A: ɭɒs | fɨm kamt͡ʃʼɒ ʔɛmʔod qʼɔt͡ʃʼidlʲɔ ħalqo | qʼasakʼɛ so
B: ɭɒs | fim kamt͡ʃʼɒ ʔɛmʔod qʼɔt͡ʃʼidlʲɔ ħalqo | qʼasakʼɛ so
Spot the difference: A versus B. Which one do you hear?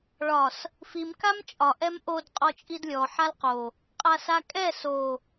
B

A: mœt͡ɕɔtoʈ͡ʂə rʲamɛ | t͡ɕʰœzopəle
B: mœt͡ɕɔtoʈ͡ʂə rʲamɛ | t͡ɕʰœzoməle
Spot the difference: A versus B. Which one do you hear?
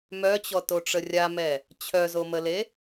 B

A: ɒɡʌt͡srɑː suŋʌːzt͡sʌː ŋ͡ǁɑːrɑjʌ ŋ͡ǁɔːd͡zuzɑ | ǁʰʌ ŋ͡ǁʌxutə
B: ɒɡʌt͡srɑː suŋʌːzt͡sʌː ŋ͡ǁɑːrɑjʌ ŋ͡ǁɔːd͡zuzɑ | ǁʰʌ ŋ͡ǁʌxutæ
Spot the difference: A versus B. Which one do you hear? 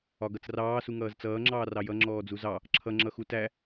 B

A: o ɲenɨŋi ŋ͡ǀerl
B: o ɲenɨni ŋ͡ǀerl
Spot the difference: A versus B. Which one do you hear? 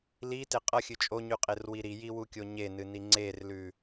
B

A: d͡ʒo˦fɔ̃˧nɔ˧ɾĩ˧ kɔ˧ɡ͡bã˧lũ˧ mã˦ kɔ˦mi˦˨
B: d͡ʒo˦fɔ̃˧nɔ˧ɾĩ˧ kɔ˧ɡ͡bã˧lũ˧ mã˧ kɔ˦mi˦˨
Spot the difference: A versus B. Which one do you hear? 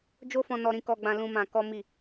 B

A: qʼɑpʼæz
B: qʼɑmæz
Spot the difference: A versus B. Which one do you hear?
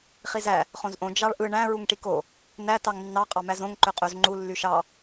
B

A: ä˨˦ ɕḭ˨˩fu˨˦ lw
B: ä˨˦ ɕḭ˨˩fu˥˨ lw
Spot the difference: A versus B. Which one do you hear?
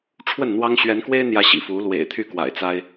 A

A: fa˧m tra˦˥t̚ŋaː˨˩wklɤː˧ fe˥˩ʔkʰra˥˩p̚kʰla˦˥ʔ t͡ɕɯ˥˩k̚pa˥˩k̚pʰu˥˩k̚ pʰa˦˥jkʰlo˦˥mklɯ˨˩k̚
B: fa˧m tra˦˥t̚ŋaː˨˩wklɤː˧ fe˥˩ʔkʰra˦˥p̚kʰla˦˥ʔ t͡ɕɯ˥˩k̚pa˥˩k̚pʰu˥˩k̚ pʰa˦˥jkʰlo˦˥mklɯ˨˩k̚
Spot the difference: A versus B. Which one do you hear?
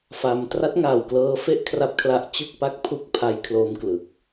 B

